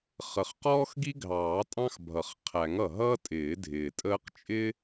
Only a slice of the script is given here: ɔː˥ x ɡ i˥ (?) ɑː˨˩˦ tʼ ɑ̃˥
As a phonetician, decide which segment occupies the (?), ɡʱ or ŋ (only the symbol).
ɡʱ